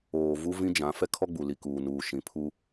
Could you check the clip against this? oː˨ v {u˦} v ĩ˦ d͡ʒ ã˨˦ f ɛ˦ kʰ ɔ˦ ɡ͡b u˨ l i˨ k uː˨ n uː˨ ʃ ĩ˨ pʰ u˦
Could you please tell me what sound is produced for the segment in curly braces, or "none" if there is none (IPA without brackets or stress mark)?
u˦